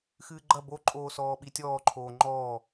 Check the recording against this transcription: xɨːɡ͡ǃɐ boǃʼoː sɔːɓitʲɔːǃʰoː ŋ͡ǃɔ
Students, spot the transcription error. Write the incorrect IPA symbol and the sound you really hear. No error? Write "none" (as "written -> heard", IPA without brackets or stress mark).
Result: ɔ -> ɔː